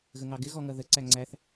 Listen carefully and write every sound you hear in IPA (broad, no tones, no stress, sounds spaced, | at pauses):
ɣ ə ŋ ɑ ɡ ɪ ɣ ɔ ŋ ʌ ð ə ǀ æ ŋ͡ǀ æ θ